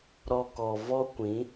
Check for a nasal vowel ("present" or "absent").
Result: present